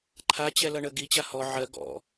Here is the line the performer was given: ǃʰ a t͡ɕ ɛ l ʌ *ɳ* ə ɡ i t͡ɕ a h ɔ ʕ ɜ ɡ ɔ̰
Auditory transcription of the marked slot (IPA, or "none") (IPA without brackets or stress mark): ɳ